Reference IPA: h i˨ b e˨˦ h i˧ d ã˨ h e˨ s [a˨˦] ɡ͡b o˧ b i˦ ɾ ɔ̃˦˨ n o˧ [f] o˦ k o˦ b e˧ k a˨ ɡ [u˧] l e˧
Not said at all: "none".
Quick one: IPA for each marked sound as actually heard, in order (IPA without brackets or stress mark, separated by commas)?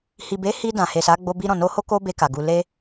a˨˦, h, u˧